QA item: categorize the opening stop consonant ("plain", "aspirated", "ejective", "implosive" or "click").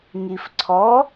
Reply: click